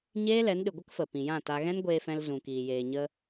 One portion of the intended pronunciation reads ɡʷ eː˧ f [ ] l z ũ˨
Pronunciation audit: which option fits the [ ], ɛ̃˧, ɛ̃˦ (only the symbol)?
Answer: ɛ̃˧